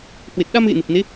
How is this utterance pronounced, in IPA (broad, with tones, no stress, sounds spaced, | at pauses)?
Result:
h w e˨˩ t̚ ɗ a˧ m ɣ ḛ˧˨ n ɨ˨˩ p̚ n e˨˦